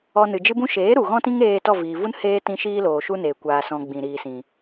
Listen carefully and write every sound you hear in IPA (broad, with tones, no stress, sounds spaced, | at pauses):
ɔ˧ n ɨ˨ d͡ʒ ɨ˦ b ũ˦ ʃ eː˨˦ ɾ u˨ ɣ ɔ̃˦ t ĩ˦ ŋ eː˧ t ɔ˦˨ v iː˨ v u˦ n h eː˦ t ĩ˧ ʃ iː˦ l oː˨ ʃ u˦ n eː˨ kʷ aː˧ s ɔ̃˧ ɡ͡b ĩ˨ ɾ iː˨ s ĩ˨